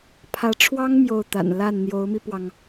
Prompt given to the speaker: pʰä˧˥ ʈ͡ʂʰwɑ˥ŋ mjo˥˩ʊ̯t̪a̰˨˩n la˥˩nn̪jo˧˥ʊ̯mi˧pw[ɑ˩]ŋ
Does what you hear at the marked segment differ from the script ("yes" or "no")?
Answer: no